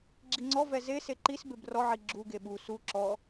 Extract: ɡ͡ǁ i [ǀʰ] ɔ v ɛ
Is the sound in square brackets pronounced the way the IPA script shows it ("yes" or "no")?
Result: no